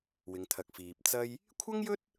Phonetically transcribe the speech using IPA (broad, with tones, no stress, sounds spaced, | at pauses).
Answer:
w ɪ˨˧ ŋ t̪ʰ ɐ˨ k̚ f iː˨ p̚ t͡s ɐ˧ j | kʷʰ ɐ˥ ŋ j ɵ˥ t̚